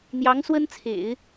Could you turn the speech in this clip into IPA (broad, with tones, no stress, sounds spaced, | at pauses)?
n̪ j ɑ˧˥ ŋ s w ə˥ n t͡sʰ ḛ˨˩˦ ɪ̯